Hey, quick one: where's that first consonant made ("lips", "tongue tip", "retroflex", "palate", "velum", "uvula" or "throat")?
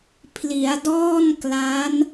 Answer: lips